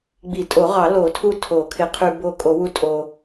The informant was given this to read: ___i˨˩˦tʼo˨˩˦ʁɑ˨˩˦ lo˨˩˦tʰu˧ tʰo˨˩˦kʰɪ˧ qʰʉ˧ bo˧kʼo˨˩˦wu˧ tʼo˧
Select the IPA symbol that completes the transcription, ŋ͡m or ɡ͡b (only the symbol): ɡ͡b